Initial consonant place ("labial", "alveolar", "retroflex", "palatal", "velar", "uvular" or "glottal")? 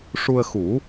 retroflex